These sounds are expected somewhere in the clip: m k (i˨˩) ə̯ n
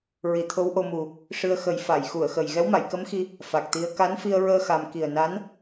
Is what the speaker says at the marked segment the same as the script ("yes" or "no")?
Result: yes